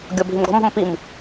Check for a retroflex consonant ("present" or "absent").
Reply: absent